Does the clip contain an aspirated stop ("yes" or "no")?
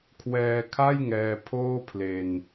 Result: yes